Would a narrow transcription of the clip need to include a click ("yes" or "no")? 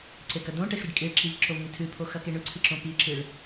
yes